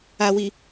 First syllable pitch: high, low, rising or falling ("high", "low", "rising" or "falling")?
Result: low